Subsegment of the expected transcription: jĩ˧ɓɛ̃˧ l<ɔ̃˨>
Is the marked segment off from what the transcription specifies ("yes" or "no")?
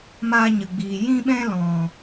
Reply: no